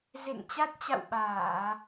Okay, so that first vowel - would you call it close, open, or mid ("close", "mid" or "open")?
mid